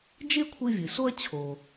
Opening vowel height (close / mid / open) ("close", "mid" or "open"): mid